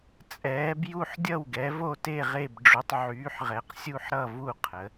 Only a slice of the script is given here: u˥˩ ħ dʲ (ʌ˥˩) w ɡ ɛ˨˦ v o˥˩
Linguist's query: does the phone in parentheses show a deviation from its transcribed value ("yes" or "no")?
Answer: no